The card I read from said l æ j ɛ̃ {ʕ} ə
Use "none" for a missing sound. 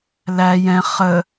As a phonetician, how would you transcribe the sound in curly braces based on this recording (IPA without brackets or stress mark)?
χ